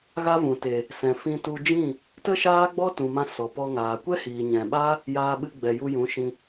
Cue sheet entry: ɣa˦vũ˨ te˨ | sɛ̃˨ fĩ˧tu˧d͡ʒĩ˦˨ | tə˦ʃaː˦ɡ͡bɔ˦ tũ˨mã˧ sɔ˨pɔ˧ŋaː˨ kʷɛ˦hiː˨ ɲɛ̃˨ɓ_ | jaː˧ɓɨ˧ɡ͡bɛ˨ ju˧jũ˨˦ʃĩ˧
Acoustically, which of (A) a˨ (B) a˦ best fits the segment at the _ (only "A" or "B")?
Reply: B